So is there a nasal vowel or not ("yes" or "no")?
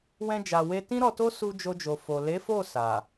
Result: yes